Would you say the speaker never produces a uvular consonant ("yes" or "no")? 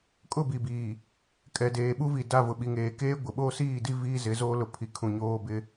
yes